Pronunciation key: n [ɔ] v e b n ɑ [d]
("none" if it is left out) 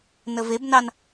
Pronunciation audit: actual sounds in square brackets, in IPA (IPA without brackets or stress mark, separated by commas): ə, n